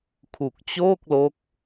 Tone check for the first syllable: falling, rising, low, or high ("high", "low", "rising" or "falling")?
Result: low